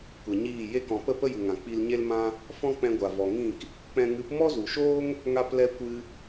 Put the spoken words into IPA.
kʷe˨ɲiː˦˨ je˧kɔ̃˨pə˦˨ pə˦ju˨ŋã˨ k͡pi˧lɲe˦lmã˦ | fɔ̃˦k͡pɛ̃˧ɡʷa˨ vɔ˨ŋĩ˦˨k | k͡pɛ̃˧ ŋɨ˨˦pmɔ˦zu˨ʃoː˦ŋ | ŋa˧plɛ˧ kʷɨ˧

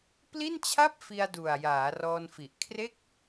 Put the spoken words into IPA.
pli˥˩nt͡ɕʰa˥˩p̚fi˧a̯ du˨˩a̯jaː˩˦rɔː˧nfi˨˩ʔ kʰre˥˩k̚

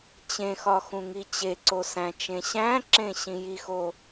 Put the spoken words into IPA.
t͡ɕẽxɒ xũŋit͡ɕeǀo sæ̃t͡ʃẽɕæ̃ǁẽ ɕĩjixo

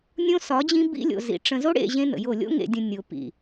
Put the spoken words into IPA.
nʲõ˦sɒ˨˦d͡ʑĩ˦ bḭ˦lʲo̰˨zḭ˨ ʈ͡ʂə̃˨zo˦ɽḛ˨ ʑẽ˦n̪ə̰˨jo˦˨ lʲo̰˦ŋḛ˨dʲə̃˨ nʲo˨pḭ˨

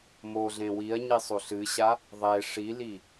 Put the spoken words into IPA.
moɮẽ wiɐ̯ɲi sˤoɬɨɕa | ðˤe ʂili

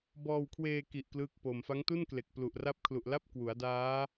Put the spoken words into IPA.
bɔː˧wkʰweː˧ki˨˩ʔ klɯː˥˩k̚po˧m fa˦˥ŋtu˥˩nkle˨˩k̚ plu˨˩ʔra˦˥p̚ kʰlu˨˩ʔla˥˩p̚ kwu˩˦a̯daː˦˥

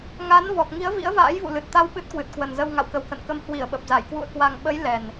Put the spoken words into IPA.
ŋa˨˦nvɔ˨˩k̚ ŋi˨˦ə̯vḭ˧˥ə̯va̰ː˧˥j vṵ˧˨lɨ˨˩t̚t̪a˧w ɓɨ˦˥t̚kwɨ˨˩t̚kwə˨˩nzə˧w ŋa̰˧˨wkə˨˩wkə̰˧˨nkə˨˦m hwi˧˩ə̯ɓə˨˩p̚za˧˩j kwṵ˧˨ə̯kwa˨˩ŋɓə˨˦j lɛ˨˩n

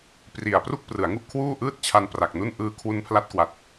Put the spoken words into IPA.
pri˨˩a̯ pru˥˩k̚prɯ˩˦a̯ŋu˥˩ʔkʰwuː˥˩ ʔɯː˥˩t̚t͡ɕʰa˦˥npra˨˩k̚nu˥˩n ʔɯː˧ kʰwu˧npʰla˦˥t̚kwa˨˩t̚

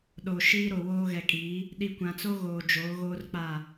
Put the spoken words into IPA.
ɗo˨ ʃiː˦ɾo˨woː˦ ɣɛ˨kʼiː˨˦ | ɗi˨kʷã˨t͡so˦ ɣoː˨d͡ʒoː˨˦ɣoː˦rk͡pa˦˨

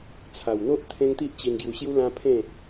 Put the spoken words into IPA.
t͡sʰa˨˩wn̪o˦ʔ t̪ʰẽ˦ŋ t̪i˦ʔt͡ɕi˧nɡju˧ɕju˦ lã˦ pʰẽ˥˧

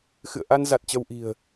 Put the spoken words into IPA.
xɨ̰˧˨ə̯ ʔa˧n za˨˩t̚t͡ɕə˧wʔi̤˨˩ə̯

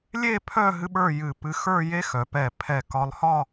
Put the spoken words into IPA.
lʲe˥˧ pʰœ˥˧ ɦɨ˥ɓə˞˥˧jɨ˧˩ pɨ˧ xə˞˥˧je˥ xœ˩˧pɛ˧˩ pʰɛ˧˩kɒ˧lˠhɒ˥˧

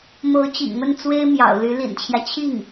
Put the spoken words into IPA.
mo˧˥ʊ̯t͡ɕḭ˨˩ŋmə˥˩n t͡swe˥ɪ̯ mjɑ̰˨˩ʊ̯ly˧˥ lḭ˨˩nt͡ɕʰjä˦ t͡ɕʰi˥˩ŋ

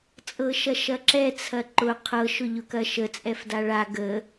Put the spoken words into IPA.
t͡sʼɤʃɐʃɐǁɛ t͡sʰɐǃʊ qʰɤ ʃʊʎʊkɐʃə t͡sʼɛfdaɭa ɡə

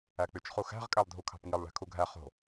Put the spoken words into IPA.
æk͡pyt͡ʃχuxæ̤ʁ kʼælˠdʱukʰɑ̤pŋilˠ ɭæ̤kʰuɡʱæ χo̤

